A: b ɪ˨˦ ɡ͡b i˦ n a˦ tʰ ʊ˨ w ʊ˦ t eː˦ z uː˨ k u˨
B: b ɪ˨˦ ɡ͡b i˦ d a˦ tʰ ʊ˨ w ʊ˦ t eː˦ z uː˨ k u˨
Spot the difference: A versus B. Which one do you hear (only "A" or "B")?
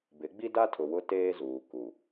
B